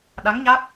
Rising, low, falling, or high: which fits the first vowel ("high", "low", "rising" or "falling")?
rising